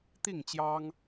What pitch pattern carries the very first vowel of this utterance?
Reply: falling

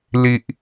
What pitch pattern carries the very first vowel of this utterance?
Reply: low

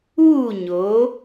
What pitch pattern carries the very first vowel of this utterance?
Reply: falling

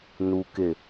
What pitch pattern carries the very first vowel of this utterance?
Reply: low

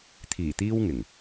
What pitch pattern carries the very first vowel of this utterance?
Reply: low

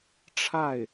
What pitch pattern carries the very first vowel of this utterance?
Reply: falling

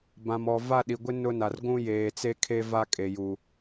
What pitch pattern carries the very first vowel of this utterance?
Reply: low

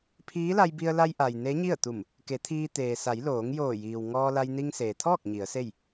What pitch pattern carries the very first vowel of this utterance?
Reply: rising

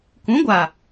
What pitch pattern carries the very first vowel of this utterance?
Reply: rising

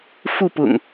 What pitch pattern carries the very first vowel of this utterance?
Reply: falling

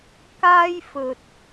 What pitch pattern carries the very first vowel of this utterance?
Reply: high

